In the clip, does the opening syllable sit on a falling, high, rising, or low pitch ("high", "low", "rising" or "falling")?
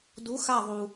rising